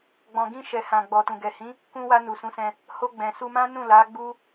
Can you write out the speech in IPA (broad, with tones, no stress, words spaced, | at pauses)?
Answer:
ɡ͡bɔ̃˨ɡĩ˧ʃɛ˨hã˨ ɡ͡bɔ˨tũ˨ ɡɛ˨hĩ˨˦ | kũ˧wa˧ nu˨sũ˨˦sɛ̃˧ | ho˧ɡ͡bɛ̃˨ su˧mã˦ nũ˦˨la˨˦ ɡ͡bu˦